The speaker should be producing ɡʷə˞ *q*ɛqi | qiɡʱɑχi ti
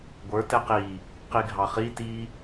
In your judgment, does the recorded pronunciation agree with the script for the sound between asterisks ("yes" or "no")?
no